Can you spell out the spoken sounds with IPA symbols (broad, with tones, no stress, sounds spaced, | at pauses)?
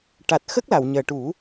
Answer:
ʈ a˨˩ t̚ x ə˦˥ k̚ l a˨˩˨ w ɲ əː˨˩ ʈ u˨˩˦